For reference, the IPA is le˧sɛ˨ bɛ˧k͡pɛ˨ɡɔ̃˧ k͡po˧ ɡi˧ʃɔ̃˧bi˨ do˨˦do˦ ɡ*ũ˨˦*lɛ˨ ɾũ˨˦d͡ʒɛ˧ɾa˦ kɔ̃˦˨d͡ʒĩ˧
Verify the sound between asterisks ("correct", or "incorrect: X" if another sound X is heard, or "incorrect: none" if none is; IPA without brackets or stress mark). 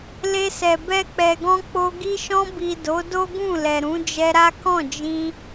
incorrect: ũ˦˨